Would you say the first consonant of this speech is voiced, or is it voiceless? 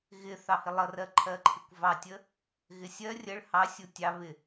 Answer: voiced